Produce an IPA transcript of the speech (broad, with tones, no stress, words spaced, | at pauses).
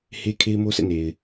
he˦kʰe˦ɪ̯mo˦ sɛ̰˦˨ne˨ɪ̯